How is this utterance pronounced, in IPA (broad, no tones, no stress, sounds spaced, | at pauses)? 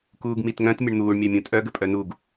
k uː ɡ m i t ŋ œ̃ t mʲ ə ɳ n̪ uː ɳ mʲ œ mʲ ũ tʼ œ ɡ ə pʼ œ n u ɡ